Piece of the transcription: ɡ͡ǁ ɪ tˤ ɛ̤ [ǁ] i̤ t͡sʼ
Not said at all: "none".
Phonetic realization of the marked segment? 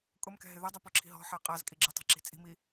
ǁ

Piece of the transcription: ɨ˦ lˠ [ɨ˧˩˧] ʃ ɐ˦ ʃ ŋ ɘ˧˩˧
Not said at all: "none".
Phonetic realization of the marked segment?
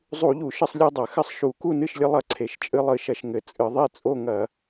ɨ˧˩˧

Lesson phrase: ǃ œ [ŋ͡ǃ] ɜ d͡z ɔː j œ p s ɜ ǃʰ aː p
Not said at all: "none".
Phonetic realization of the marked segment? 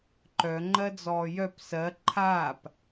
ŋ͡ǃ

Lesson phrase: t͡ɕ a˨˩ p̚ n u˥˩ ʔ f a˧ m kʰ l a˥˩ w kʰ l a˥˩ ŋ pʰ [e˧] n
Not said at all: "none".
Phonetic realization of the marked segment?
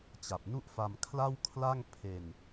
e˧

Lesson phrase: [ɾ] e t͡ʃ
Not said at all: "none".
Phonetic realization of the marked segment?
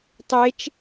tˤ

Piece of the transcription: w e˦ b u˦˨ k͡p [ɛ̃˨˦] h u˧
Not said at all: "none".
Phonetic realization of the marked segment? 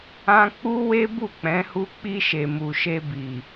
ɛ̃˨˦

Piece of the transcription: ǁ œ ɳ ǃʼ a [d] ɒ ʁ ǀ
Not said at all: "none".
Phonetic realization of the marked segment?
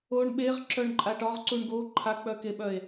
ʈ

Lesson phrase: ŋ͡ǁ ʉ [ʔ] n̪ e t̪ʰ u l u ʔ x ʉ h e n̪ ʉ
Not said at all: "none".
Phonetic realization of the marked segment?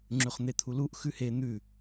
χ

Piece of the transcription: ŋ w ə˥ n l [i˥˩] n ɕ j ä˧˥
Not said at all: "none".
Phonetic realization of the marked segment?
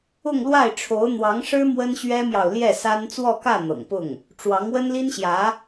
i˥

